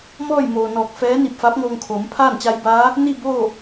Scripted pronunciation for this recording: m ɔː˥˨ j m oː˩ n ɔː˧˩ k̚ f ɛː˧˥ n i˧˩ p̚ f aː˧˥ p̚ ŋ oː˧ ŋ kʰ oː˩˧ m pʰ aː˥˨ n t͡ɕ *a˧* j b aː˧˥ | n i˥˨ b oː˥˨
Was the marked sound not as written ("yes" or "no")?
no